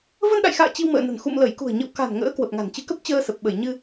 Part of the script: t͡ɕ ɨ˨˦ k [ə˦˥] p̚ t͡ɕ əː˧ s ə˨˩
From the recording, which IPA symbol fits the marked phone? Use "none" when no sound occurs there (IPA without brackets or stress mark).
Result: ə˦˥